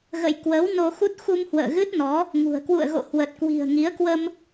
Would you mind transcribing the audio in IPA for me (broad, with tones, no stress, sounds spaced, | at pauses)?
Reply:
ɣ ə̰˧˨ j k w əː˨˦ w n o˧ x u˦˥ t̚ x u˧ m h w ə̰ː˧˨ ɣ ɨ˦˥ t̚ n ɔ˨˦ | ŋ ṳ˨˩ ə̯ k w ṵ˧˨ ə̯ ɣ o̰˧˨ h w ə˨˩ t̚ k w i̤˨˩ ə̯ ŋ i˨˦ ə̯ k w ə˧ m